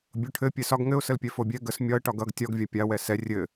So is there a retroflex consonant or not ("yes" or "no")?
yes